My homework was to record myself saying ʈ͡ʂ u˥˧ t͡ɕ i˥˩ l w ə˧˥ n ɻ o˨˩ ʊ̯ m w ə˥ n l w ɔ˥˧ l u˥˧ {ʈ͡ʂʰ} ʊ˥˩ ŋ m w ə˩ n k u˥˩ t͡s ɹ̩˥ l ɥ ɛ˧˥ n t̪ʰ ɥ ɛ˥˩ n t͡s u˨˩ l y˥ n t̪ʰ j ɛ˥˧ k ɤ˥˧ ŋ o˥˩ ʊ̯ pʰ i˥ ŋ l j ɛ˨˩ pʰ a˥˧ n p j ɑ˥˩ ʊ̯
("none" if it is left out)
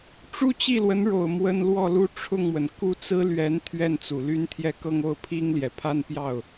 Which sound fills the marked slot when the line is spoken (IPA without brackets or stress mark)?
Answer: ʈ͡ʂʰ